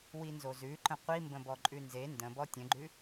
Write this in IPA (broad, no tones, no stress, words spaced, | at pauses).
winzozʉǃə̃ qʷimbə̃ bɔǃʼʉnze ndə̃bɔ tʲə̃ɡ͡ǃʉ